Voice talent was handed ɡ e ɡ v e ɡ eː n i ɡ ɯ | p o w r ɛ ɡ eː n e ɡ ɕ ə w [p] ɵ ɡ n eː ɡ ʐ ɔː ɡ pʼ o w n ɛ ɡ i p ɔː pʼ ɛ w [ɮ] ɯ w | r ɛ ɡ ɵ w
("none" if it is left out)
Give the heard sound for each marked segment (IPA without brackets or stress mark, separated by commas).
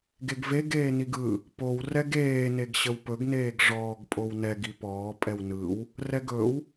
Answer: p, n